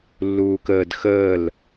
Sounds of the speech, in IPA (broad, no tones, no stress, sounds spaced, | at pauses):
lː uː k əː d x əː l